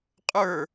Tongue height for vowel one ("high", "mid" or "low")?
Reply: mid